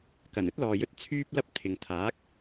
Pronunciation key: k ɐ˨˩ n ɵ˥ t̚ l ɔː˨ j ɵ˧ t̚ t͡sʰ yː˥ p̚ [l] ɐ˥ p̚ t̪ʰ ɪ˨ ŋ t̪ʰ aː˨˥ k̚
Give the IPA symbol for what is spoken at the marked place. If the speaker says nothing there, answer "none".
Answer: l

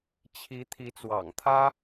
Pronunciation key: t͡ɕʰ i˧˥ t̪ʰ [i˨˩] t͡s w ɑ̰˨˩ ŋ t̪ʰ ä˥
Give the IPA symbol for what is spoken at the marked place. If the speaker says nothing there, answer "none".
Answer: i˧˥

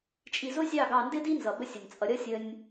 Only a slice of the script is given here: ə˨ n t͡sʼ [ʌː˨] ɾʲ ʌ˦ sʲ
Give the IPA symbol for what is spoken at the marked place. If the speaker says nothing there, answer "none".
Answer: ʌ˨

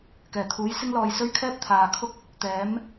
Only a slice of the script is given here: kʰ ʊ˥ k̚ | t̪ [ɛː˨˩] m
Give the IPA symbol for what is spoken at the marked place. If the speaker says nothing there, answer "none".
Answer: ɛː˨˥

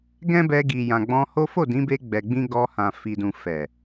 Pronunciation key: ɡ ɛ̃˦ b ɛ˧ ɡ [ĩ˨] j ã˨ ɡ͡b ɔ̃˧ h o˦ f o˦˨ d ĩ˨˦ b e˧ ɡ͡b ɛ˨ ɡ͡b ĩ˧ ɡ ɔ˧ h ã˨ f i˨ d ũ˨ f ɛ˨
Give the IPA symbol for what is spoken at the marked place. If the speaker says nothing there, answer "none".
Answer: i˨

